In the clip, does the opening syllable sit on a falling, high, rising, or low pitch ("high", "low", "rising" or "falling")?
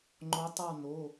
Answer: rising